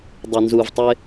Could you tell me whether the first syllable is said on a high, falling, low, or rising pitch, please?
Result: low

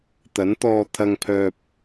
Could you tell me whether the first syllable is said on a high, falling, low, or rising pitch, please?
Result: rising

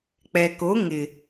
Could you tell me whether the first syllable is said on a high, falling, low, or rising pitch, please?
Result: low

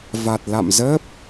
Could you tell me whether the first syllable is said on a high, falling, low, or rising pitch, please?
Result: low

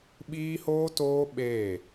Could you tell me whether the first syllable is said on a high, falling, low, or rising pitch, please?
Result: high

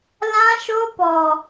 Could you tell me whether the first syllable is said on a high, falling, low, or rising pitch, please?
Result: high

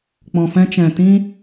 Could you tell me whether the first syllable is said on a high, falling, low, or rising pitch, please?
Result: low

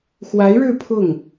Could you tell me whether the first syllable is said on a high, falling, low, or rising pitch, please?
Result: rising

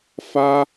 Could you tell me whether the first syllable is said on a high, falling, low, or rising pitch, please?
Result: high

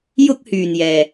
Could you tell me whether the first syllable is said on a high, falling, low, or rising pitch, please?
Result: high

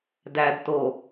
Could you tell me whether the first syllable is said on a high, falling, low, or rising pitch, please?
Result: low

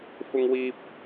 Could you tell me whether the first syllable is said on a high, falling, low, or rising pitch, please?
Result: high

